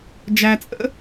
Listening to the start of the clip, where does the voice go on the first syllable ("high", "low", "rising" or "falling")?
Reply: low